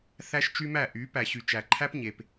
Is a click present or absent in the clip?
present